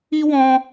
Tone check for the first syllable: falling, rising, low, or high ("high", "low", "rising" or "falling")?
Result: high